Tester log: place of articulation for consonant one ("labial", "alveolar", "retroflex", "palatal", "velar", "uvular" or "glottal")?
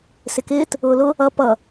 alveolar